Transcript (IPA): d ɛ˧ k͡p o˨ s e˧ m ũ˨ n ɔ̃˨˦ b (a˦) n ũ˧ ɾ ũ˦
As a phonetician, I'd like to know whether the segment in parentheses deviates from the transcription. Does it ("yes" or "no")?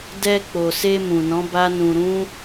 no